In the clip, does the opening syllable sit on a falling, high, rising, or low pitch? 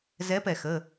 rising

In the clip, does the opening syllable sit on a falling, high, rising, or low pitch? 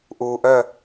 low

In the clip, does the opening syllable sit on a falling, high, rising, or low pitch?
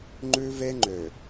high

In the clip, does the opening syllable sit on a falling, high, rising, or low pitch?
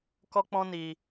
high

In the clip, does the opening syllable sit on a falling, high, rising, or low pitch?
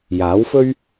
rising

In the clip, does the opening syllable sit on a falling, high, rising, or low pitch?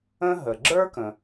high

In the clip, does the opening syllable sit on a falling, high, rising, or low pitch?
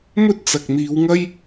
high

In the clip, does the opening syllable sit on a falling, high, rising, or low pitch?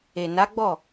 low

